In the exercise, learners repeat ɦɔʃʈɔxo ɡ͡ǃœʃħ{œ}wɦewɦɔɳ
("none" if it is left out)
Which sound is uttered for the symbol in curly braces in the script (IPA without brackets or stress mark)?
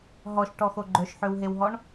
ø